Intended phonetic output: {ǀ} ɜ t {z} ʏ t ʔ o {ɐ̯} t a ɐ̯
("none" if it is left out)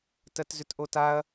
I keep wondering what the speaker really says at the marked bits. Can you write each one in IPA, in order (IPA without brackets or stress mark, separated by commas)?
t, z, none